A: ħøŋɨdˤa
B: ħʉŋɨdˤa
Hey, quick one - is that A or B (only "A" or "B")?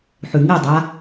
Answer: B